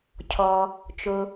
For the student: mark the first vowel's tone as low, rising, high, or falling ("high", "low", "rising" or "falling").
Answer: low